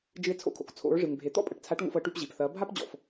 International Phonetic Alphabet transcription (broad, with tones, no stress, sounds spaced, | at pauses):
d͡ʒ ɨ˧ e̯ t͡sʰ o̰˧ kʰ o̰˩˧ k t͡sʰ o̰˩˧ ɹ ʐ ɨ˩ ŋ bʱ e˩˧ t̪ ɔ̰˥ pʼ ɐ˩ ʈ t͡sʰ a˧˥ ʈ ŋ o̰˧ f ɤ˩˧ ʈ y˧ p ʑ i˩ p θ ɐː˩˧ bʱ a˥ p d͡ʑ ɔ̰˩ f